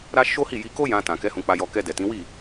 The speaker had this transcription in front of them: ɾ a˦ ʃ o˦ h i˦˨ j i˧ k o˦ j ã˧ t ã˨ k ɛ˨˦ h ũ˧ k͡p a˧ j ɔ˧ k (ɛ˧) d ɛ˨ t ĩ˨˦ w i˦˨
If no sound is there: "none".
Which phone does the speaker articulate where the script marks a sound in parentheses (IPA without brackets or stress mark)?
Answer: ɛ˧